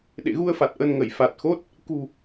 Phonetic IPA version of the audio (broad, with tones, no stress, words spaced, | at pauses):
ɗḛ˧˨ɣu˧ə̯fa˨˩t̚ ʔə˧n ŋə˧˩jfa˨˩t̚xo˦˥t̚ | kṳ˨˩